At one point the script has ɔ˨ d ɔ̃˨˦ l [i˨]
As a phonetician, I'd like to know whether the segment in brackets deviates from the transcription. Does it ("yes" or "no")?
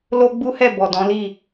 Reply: yes